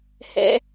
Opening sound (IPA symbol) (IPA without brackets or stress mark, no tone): h